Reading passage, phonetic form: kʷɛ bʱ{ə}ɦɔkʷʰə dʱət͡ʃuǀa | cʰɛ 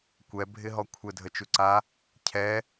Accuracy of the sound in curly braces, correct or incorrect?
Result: incorrect